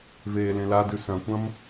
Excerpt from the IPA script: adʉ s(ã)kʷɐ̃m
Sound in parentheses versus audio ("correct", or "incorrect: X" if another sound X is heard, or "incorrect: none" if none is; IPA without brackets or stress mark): incorrect: ɐ̃